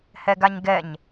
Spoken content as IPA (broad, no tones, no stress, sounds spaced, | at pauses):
h ɛ ɡ a ɲ ɡ ɛ ɲ